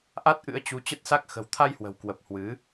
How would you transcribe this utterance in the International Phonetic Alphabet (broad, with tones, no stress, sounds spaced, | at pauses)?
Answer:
ʔ a˦˥ t̚ ʔ ɨ̰˧˥ ə̯ t͡ɕ u˨˦ t͡ɕ ə˦˥ t̚ s a˦˥ k̚ x ə̤˨˩ w t̪ʰ a˧ j h w ə̤˨˩ w k w ə˨˩ p̚ h w ɨ˨˦